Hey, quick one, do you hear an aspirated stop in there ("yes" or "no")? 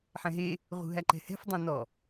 no